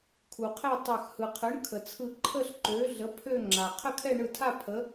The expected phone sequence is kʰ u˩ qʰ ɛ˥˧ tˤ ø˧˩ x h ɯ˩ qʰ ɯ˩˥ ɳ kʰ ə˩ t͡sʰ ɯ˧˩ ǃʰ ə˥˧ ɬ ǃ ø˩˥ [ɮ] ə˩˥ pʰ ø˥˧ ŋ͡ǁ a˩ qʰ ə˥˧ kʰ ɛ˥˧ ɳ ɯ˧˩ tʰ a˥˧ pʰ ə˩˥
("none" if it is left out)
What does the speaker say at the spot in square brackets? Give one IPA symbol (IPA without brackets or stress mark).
ɮ